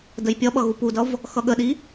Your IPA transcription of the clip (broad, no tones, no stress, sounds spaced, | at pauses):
d ə j pʲ ʌ ɓ ʌ ɣ u p u d ʌ v | x ʌ ɠ ə ɗ i